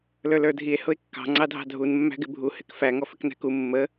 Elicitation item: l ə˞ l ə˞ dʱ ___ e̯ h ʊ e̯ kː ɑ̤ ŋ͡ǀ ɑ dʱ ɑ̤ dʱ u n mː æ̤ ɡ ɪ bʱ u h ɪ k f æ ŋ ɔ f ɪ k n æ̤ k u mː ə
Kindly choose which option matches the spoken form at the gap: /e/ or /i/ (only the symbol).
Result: i